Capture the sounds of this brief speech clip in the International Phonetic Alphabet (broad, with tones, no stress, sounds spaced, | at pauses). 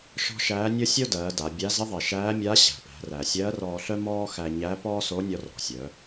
ʃ ɔ̤˥ ʃ æː˧˥ nʲ o˥ sʲ o˥ d ɜː˩˧ d a˩˧ bʲ a˧˥ z ɪ˧˥ ðˤ ɜ˩ ʃ æː˧˥ mʲ a˧˥ ɕ æ̤˩ p æ̤˩˧ r æ˩ sʲ ɜː˧˥ r ɔː˧ ɬ œ˥ m ɔː˥ x æ˧ ɲ æ˧˥ p ɔː˥ s o˧˥ nʲ ɔ˧ r ɔ̤˩ sʲ œ˩˧